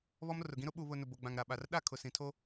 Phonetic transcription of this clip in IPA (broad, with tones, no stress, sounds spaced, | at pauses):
β ɔ˦ m r ʊ˨ ɡ ĩ˦ ɾ ʊ˦ ɓ u˨ β ʊ˨ n ʊ˨ b o˨ ɡ͡b ã˨ ŋ ɾ a˨ ɓ a˨ r ɗ a˦˨ kʰ ʊ˨ s ĩ˨ tʰ o˦